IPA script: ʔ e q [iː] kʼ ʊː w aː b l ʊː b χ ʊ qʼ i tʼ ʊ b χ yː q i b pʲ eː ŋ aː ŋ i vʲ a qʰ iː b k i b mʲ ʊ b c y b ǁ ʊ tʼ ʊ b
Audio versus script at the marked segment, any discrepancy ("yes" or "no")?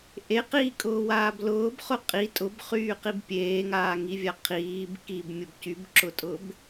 no